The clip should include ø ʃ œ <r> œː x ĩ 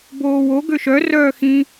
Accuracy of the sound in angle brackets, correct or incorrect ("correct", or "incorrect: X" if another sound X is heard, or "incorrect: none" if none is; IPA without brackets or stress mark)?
correct